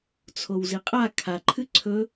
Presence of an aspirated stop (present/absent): present